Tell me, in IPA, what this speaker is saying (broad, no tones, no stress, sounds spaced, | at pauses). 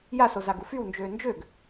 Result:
j a s o z a ɡ u f y w n d͡ʒ øː n d͡ʒ ø ɡ